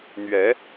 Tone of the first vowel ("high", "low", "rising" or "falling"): rising